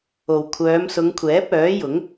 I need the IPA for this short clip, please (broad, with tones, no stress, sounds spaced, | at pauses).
o˨ w kʷʰ œː˨˧ m s ʊ˨˧ ŋ kʷʰ ɛː˨˥ p̚ œː˨˥ j ʊ˨˥ ŋ